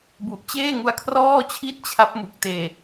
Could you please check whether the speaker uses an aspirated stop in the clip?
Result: yes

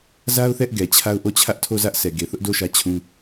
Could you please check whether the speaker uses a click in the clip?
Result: no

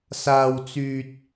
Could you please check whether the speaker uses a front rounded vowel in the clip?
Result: yes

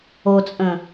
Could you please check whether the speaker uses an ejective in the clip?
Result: yes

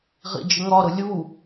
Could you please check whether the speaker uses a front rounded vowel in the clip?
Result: no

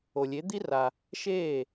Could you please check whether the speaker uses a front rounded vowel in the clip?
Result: no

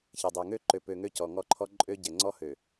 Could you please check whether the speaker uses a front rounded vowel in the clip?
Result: yes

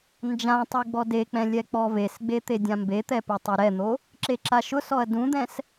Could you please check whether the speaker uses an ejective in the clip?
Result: no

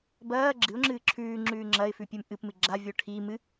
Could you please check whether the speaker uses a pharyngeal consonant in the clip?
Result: no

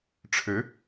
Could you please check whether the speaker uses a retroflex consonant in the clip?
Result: yes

